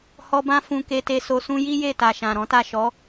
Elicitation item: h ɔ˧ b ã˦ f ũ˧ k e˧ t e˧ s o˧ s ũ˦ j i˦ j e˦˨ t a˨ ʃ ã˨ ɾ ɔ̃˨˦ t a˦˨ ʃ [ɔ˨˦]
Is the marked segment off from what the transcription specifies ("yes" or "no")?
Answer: no